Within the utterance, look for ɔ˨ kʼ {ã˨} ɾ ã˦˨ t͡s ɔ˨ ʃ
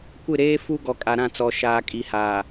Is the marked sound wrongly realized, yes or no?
yes